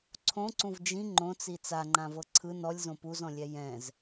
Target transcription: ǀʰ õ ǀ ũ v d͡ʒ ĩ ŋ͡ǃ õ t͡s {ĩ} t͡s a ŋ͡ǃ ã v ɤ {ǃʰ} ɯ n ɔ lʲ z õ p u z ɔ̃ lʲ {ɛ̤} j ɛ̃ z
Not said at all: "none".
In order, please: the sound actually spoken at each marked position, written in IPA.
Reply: i, ǀʰ, ɛ

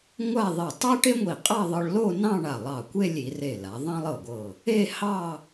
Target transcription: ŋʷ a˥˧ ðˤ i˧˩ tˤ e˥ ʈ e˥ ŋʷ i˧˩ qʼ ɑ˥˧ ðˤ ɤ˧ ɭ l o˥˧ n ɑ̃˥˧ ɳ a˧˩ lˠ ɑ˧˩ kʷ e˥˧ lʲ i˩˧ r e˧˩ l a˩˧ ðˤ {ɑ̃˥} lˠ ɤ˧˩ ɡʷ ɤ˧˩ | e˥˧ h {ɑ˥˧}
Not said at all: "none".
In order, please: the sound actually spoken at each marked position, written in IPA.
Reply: ɑ̃˥, ɑ˥˧

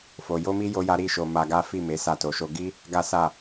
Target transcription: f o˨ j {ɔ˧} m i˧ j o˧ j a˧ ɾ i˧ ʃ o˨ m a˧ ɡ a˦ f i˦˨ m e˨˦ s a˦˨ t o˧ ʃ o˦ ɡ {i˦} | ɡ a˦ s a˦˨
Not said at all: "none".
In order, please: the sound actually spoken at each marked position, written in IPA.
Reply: o˧, i˦

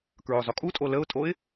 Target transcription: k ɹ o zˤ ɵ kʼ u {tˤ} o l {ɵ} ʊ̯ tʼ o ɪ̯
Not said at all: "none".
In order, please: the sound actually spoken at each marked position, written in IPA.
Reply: tʼ, ə

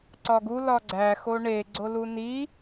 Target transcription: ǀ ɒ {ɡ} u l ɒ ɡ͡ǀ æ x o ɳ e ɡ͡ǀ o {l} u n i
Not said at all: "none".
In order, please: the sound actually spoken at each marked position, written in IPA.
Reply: ɡ, l

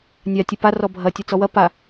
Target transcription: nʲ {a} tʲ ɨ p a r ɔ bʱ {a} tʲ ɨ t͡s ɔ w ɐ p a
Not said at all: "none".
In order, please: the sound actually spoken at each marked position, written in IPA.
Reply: a, ɐ

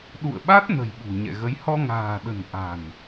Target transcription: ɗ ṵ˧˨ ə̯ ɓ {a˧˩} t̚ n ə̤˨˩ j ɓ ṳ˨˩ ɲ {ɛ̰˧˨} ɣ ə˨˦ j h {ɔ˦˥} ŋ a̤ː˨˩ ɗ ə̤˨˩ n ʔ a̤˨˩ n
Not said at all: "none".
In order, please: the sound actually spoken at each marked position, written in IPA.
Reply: a˦˥, ɛ̰˧˨, ɔ˧

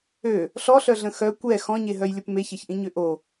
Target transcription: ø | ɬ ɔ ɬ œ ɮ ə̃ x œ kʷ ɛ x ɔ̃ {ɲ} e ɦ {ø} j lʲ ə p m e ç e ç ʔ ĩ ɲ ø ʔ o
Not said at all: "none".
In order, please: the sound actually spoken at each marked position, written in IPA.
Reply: ɲ, œ

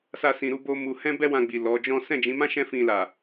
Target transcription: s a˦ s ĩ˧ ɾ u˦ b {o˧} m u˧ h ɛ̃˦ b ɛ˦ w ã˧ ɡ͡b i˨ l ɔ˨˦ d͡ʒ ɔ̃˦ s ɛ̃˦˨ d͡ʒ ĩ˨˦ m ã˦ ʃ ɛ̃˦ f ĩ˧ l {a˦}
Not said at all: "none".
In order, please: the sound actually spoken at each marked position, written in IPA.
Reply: o˦, a˨

